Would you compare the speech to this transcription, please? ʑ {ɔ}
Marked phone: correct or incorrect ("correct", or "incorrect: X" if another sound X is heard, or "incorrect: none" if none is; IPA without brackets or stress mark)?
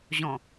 incorrect: ɔ̃